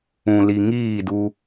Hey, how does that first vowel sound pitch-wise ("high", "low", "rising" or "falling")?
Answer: low